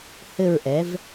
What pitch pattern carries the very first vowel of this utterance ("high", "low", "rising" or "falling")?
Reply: falling